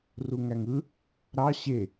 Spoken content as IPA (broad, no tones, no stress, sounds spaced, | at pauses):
r u ŋ æ ŋ ɯ | ɾ ɑ ɕ e